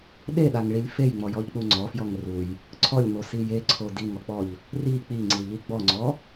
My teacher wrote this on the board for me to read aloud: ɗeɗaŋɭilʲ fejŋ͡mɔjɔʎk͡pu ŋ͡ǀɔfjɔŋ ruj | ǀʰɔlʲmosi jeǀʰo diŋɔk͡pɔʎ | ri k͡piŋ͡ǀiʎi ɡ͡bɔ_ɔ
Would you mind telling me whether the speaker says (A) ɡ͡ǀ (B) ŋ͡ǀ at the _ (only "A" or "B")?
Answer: B